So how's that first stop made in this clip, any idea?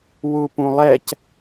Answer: plain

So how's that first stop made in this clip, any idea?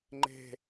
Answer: click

